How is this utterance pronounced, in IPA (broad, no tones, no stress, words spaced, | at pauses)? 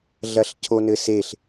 ɮɐɬcʰonɘseɬ